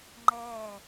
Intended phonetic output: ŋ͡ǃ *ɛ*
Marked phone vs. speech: correct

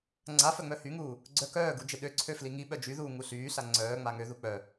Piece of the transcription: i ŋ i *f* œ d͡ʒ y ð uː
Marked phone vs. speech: incorrect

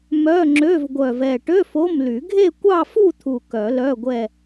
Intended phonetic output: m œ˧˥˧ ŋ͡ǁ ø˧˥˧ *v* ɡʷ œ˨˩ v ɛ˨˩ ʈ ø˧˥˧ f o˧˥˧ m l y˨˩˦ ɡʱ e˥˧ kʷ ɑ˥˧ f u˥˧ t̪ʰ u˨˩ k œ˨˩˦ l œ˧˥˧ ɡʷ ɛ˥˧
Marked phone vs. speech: correct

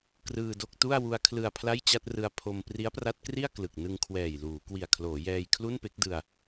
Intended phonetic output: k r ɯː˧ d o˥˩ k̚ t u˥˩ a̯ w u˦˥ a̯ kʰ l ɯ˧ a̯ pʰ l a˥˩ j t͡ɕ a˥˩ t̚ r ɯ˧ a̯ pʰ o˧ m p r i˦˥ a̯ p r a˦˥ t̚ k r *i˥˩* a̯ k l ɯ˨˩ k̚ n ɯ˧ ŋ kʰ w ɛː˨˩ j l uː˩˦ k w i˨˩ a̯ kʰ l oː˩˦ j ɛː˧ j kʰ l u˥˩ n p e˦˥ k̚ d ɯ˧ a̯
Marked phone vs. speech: correct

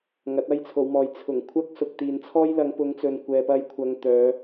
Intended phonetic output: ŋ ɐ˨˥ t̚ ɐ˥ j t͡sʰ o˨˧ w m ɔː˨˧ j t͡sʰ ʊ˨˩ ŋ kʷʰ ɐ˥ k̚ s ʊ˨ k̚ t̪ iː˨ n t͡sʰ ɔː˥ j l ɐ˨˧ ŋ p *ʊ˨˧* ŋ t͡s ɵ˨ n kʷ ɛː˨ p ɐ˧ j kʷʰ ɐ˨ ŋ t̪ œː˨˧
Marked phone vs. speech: correct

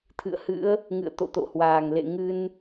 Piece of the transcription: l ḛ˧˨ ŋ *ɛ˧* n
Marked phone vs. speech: incorrect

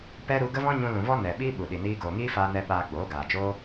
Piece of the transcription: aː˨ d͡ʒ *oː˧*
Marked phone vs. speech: incorrect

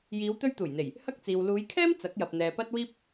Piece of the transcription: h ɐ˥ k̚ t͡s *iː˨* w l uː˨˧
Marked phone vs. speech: correct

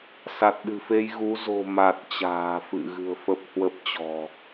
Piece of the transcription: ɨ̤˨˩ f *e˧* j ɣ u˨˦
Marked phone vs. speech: correct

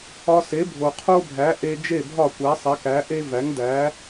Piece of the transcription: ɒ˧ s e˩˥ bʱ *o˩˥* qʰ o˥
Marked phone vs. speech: incorrect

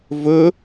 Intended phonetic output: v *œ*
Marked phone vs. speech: incorrect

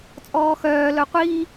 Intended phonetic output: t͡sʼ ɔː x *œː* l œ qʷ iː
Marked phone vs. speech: correct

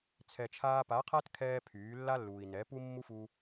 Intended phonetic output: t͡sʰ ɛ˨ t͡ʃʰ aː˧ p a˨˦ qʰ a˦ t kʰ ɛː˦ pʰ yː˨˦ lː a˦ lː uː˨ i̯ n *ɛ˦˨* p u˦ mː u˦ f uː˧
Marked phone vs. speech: incorrect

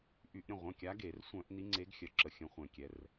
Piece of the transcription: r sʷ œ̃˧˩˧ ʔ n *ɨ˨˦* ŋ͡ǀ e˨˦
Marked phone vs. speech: incorrect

